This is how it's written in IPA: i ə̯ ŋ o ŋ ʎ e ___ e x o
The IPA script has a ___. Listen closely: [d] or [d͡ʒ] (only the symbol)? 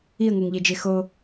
d͡ʒ